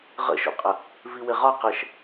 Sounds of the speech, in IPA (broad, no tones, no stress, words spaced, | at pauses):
ʁə̰ʃo̰qʼə | viwɪʁɒ qəʃ